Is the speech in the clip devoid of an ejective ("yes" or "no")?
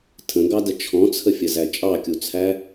no